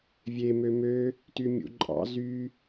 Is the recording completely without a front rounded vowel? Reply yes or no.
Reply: no